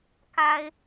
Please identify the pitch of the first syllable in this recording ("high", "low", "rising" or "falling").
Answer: high